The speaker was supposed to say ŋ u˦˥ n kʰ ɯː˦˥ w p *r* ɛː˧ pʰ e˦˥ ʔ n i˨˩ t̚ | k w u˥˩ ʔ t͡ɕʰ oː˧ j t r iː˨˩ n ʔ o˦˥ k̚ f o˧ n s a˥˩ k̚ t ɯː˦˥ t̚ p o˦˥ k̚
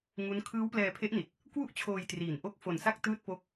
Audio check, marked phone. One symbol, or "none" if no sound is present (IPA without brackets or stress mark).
l